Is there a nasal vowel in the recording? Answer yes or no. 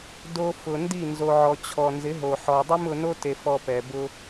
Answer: no